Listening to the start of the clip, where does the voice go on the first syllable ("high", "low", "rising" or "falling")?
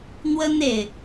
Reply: high